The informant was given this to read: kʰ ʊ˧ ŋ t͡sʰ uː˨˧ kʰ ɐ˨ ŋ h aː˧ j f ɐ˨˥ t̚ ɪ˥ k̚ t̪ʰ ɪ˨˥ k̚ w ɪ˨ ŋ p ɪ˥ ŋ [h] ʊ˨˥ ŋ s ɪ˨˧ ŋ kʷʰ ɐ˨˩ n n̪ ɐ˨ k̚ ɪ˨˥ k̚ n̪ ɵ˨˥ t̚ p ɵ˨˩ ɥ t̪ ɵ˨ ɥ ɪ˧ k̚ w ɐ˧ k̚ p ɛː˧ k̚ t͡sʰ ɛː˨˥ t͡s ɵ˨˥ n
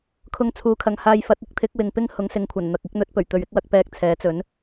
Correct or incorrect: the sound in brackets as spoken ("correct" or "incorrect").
correct